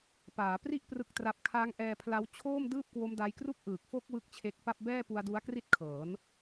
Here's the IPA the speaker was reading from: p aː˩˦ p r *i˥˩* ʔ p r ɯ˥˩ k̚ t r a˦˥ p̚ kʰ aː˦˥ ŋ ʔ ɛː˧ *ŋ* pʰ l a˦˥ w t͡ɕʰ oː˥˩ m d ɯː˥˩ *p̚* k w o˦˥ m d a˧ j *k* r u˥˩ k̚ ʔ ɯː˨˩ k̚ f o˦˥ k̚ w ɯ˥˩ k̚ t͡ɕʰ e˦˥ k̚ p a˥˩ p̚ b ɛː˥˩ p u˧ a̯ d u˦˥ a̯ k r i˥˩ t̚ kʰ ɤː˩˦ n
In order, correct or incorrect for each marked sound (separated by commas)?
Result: correct, incorrect, correct, correct